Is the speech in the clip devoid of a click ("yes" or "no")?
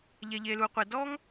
yes